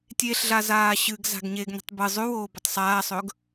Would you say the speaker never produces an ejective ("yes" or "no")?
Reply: yes